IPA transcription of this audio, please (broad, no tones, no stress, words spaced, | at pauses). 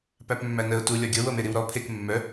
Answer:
pæpmːænəʊ̯ tulʲɒ ɡʲɤwɤmeɾiw ɾɔ pʰek mːœ